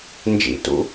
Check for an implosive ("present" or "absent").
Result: absent